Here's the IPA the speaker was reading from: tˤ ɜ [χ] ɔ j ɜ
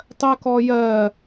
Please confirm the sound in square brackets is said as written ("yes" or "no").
no